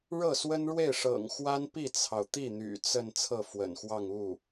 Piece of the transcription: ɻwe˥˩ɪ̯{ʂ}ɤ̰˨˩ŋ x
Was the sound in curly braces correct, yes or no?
yes